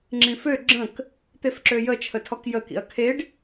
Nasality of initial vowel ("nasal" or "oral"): nasal